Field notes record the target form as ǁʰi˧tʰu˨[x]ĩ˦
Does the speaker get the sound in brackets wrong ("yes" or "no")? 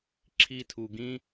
yes